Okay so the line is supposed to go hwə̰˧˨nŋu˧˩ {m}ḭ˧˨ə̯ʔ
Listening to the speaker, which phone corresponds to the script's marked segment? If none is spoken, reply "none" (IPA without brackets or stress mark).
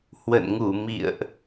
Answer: m